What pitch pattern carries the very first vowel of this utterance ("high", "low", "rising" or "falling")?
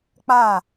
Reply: falling